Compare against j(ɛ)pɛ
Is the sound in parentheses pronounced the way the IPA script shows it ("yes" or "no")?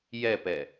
yes